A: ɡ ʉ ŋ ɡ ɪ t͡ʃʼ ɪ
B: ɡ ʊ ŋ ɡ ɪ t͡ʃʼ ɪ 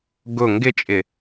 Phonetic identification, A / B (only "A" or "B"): B